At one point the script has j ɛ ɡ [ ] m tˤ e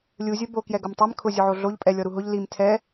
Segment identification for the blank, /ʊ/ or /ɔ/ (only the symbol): ʊ